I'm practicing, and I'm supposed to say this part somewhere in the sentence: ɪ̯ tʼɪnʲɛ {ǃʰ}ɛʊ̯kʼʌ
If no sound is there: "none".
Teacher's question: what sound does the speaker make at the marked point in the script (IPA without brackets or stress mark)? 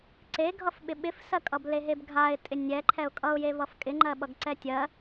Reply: ǃʰ